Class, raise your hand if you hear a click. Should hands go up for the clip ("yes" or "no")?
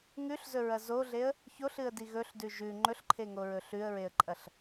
yes